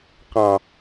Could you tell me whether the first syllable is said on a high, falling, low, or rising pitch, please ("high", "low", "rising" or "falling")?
low